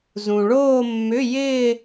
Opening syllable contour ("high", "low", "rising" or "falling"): low